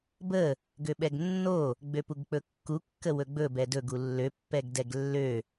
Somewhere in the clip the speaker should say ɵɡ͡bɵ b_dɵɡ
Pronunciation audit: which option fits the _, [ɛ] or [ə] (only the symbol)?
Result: ɛ